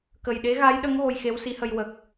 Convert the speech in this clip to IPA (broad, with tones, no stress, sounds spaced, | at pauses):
k ə˨˩ j ɗ e˧˥ ɣ a˧˥ j ɗ ə˧˥ ŋ ɣ o˧ j x e˧˥ w s i˧˥ h ə˧ j w ə˨˩ k̚